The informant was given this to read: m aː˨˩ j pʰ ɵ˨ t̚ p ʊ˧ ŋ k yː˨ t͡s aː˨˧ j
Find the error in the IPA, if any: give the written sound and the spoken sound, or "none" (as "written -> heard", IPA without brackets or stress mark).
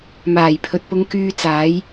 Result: yː˨ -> yː˧